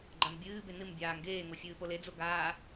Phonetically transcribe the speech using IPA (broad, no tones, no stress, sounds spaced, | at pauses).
ɡ͡ǃ a m bʲ ɨː b e n ɨ m bʲ aː ŋ ɡ eː ŋ o fʲ ɨː p o l e d͡z o ɡ aː